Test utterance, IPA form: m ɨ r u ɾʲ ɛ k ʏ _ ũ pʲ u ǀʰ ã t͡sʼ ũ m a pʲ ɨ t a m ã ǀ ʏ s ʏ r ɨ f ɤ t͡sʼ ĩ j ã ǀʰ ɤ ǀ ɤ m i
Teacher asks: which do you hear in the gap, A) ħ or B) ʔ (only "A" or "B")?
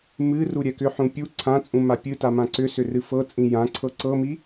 A